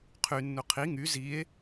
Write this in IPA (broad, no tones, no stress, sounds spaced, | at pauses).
qʰ y nː u qʰ i ŋ y z i e̯